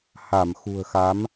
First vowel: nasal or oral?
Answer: oral